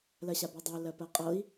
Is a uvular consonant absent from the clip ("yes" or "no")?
no